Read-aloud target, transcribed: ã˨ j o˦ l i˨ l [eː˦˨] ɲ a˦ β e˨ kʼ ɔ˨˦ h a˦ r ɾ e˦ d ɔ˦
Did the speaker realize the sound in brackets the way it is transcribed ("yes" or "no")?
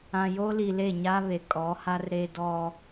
no